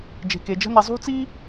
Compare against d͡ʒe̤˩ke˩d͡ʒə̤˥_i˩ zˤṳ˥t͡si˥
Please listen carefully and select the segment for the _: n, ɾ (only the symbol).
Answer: n